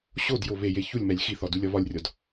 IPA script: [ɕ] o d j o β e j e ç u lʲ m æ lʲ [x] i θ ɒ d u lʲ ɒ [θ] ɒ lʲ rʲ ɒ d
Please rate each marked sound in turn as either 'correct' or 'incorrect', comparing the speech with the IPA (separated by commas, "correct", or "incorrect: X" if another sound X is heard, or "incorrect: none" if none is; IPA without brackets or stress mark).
correct, correct, incorrect: β